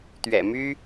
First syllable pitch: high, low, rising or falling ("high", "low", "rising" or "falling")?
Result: low